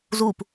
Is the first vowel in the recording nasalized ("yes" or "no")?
no